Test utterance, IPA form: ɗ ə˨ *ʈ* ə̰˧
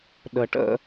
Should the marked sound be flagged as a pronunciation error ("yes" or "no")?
no